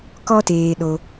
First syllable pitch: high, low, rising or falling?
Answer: high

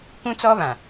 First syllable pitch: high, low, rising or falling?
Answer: high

